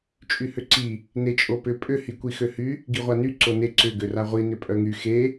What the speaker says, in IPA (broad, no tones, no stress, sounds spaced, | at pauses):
t͡ʃʼ y h ʏ ǀ i | n e t͡ʃʼ o p ʏ pʼ ʏ h i kʷ i x ø h y | ɡ i ʁʷ a n y ǀ o n e ǀ ʏ ɡ ø r a ʁʷ i n ʏ pʼ œ ŋ y x e